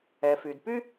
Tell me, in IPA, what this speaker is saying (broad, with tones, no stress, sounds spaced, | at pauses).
ɛ˩ f y˩ d p y˥